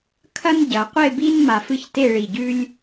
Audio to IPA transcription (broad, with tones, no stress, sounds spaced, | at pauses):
kʰ ɐ˥ n ɟ ɐ˩˧ qʷ e˥˧ b i˥ n m a˧ f ɨ˥ ç t e˥˧ ɭ i˧˩ ɟ ʉ˥ lʲ